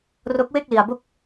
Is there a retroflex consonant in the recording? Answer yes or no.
no